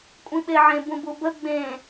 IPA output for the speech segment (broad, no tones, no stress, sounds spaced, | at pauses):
kʷʼ ĩ ɓ e ʕ ẽ b ũ b u b ə ɡ͡b ẽ